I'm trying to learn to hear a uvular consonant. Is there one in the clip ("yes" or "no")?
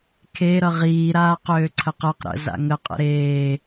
yes